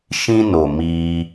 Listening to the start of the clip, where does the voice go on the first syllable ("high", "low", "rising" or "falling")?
high